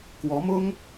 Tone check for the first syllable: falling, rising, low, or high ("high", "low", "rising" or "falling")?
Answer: rising